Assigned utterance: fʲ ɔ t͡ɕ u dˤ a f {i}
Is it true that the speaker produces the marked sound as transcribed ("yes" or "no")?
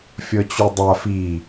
yes